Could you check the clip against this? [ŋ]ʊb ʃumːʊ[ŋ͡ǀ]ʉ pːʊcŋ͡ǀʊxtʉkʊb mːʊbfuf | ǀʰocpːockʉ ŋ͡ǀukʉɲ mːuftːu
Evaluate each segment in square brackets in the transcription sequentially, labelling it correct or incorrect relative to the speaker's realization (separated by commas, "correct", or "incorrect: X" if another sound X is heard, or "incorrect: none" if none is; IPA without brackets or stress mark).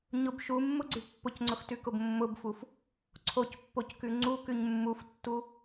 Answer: incorrect: ɲ, incorrect: ɡ͡ǀ